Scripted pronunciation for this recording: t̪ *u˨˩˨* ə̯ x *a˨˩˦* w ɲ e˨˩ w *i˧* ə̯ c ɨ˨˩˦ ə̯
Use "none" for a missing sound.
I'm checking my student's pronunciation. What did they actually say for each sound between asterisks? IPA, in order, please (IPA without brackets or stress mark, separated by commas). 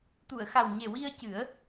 u˨˩˨, a˨˩, i˧